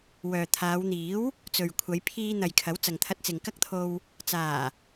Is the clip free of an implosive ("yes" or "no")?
yes